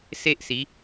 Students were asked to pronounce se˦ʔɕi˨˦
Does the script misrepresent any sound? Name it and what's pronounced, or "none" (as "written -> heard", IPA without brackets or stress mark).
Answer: ɕ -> s